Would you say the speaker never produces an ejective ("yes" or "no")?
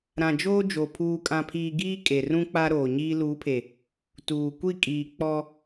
no